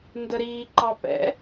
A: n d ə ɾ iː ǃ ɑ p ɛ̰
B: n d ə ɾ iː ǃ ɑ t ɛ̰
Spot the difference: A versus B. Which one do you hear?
A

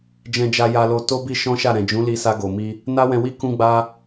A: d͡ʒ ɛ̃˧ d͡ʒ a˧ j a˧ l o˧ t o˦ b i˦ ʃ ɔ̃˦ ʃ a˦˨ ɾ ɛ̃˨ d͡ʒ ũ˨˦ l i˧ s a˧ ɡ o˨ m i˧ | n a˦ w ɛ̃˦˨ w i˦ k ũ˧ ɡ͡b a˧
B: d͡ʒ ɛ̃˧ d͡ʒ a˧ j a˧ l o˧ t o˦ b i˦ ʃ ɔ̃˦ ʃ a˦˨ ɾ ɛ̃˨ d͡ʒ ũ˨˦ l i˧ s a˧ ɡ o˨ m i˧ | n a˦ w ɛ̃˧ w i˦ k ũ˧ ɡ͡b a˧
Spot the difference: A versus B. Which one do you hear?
B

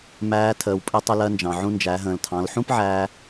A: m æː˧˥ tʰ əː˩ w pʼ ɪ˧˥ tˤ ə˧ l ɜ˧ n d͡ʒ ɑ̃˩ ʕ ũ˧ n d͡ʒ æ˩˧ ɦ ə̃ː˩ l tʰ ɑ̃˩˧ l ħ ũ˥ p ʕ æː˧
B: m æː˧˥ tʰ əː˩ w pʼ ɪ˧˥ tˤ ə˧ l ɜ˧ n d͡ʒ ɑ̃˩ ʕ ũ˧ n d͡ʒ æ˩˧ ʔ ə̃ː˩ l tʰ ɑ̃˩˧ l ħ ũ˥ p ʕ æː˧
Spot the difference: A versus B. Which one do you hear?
A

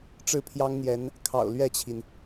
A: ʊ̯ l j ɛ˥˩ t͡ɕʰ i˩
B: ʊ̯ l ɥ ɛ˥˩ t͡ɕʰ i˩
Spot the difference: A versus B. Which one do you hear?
B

